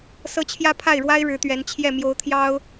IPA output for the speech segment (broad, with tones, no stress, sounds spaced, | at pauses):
s ɤ˥ t͡ɕʰ j ä˥ pʰ a˥˩ ɪ̯ ɻ w a˥ ɪ̯ ɻ ɻ̩˧˥ t̪ ɥ ɛ˧˥ n t͡ɕʰ j ɛ˥˩ m j o˧˥ ʊ̯ t̪ʰ j ɑ˥ ʊ̯